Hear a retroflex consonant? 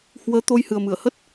no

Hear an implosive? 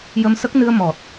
no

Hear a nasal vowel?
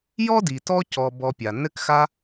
no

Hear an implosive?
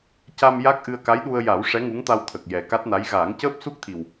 yes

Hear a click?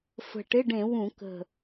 no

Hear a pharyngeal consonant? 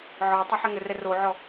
yes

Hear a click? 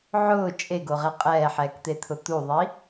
no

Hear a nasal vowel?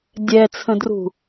yes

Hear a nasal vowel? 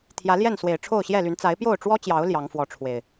no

